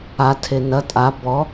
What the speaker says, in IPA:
a tʰ e n ɐ tʼ a b ɔ

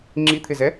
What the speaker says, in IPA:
ŋ͡ǁ i t̪ʰ ɪ z ɛ

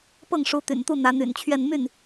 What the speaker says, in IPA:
p ɤ˥˩ ŋ ʂ u˧˥ t̪ y̰˨˩ n t̪ u˥˩ n̪ ä˧˥ n̪ y̰˨˩ n t͡ɕʰ ɥ ɛ˥˧ n m y˥˩ n

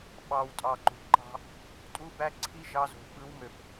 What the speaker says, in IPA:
ɓ ɑ˨ w tʼ ɑ˨ ǃ ṳ˨ ǃ ɑ̤˦ | tʼ u˦ b æ˦ ǀʰ i˦ ʒ ɑ˦ z o̤˨ ɓ ɯ˨˦ w m ø˨ p

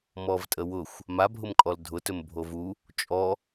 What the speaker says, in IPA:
m ɔ v tʼ ə w ʊ xʷ | m a bʱ ʊ m kʼ ɔ l dʱ ʊ t ɵ m bʱ o v u | t͡ʃʼ ɔ

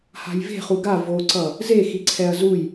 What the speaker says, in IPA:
h a̤ j v e̤ χ u ɡ a v o ǀ ʌ | z e x i ǀʰ ɛ ɐ̯ z u j

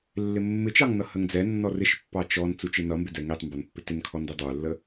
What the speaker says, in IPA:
lː ɪ mː ɪ t͡ʃ ɑ ŋ n ʌ h ə ŋ d͡z ɛ nː ɔ r ɪ ʃ pː ɑ t͡ʃ ɔ n t͡s u t͡ʃ ɪ n ʌ m b ɪ d ɛ ŋ i tˤ m b ʌ n pː ɪ t ɪ n kʰ ɔ n d i dˤ ə˞ lː ə

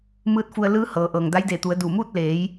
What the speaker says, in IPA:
m ɯː˧˥ t̚ f u˧ ə̯ l ɯː˧˥ h ɤː˩˧ ʔ ɤː˩ ŋ d a˧˥ j d eː˧˩ t̪ u˩˧ ə̯ d uː˧˩ m uː˥˨ t̚ l eː˩˧ j

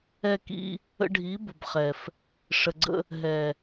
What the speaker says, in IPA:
ɛ˧ k ḭ˧ | ə̰˧ ɖʱ i˨˦ b ʊ˨ b χ ɛ˨ f | ʂ ə˨ ɡ͡ǀ ə̰˧ | ɦ ɛ˨

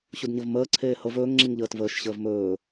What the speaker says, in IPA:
ɕ u d ɲ ə v m əː ǀʰ eː h ɤ v ɵː ŋ ŋ͡ǁ i ŋ ʎ əː t v əː ʃ ɕ əː v m ɵː

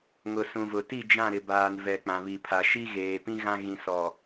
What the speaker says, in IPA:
ŋ ʊ˨ s ũ˨ v ʊ˨ t i˦˨ d͡ʒ ã˦˨ ɾ ɪ˨ b aː˨ n v ɛ˨ k͡p ã˨ β i˨ pʰ a˨ ʃ i˦ ɣ eː˨ p ĩ˦ ɣ ã˦ ɣ ĩ˨ s ɔ˨

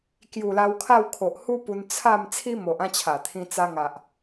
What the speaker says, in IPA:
k j u˨˩ l a˧ w kʰ a˥˧ w kʰ o˨ ʔ h u˦ p u˧ n t͡sʰ a˥˧ m t͡sʰ i˦ m o˨ ʔ ã˥˧ t͡ɕʰ a˨˩ t̪ʰ ĩ˧ t͡s a˧ ŋ a˨ ʔ

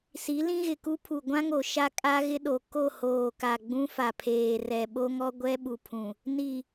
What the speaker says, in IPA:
s i˨˦ l ĩ˦ ɣ ɪ˨ k u˦ pʰ u˨ ɡʷ ã˦ ŋ o˨ ʃ a˦ kʼ a˦ ɣ ɪ˦ ɗ o˨ k o˦˨ h oː˨ k a˨ ɡ͡b ũ˦ f a˨ pʰ eː˨ r ɛ˨ ɓ o˦ ŋ ɔ˦ ɡʷ ɛ˦ ɓ u˨ pʰ ũ˨ | n i˨

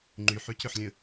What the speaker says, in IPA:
ŋ͡ǃ y ħ y c ʏ ħ lʲ ə̃

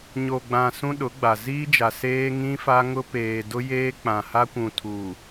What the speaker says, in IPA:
ɲ o˨ ɡ͡b ã˨ s ũ˦ ɗ ʊ˨˦ ɡ͡b a˨ z iː˦ d͡ʒ a˨ s eː˦ ŋ ĩ˦ f a˦ ŋ ʊ˦ p eː˨ d ʊ˦ j eː˦ k͡p ã˨ h a˦ kʷ ũ˨ tʰ uː˨

